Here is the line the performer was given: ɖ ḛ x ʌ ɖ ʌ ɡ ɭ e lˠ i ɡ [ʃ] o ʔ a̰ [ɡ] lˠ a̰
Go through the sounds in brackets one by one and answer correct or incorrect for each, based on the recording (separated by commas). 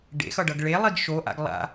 correct, correct